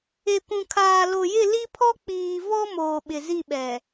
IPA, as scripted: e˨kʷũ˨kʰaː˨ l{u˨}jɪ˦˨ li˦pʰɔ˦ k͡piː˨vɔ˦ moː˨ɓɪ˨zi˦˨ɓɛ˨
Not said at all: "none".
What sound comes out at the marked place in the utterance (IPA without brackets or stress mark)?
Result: o˨